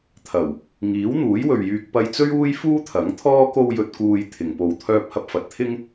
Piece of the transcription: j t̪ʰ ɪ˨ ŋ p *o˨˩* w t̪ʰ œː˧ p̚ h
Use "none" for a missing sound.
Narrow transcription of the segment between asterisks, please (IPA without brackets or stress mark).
o˧